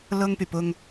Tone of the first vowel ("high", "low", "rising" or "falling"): high